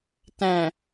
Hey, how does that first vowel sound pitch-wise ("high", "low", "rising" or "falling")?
low